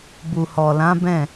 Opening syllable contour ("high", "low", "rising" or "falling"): low